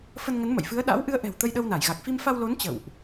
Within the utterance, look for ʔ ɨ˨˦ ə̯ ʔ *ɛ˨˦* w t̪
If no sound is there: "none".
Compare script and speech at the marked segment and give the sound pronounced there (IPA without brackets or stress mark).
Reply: ɛ̤˨˩